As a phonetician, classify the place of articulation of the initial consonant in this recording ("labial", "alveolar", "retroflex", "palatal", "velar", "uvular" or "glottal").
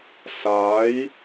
alveolar